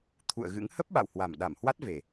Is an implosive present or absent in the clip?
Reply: present